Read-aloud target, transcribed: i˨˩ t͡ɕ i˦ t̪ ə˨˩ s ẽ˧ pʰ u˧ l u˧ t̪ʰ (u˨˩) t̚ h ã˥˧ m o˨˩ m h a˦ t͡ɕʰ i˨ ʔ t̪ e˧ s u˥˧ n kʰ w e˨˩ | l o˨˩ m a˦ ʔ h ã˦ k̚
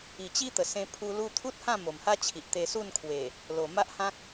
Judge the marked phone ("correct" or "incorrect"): incorrect